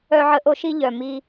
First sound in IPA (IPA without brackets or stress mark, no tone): œ